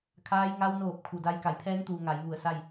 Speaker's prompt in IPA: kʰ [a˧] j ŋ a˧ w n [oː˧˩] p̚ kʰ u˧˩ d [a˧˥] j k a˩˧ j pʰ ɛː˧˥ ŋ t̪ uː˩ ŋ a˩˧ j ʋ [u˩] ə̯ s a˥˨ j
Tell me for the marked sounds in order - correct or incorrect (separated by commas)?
incorrect, correct, correct, incorrect